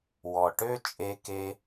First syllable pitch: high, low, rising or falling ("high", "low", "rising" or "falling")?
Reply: low